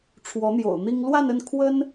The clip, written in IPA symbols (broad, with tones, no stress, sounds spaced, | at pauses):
ʈ͡ʂʰ w ɔ˧˥ n̪ j o̰˨˩ ʊ̯ n̪ i˥ ŋ l w a˥˧ n ə˥˩ n kʰ w ə˥ n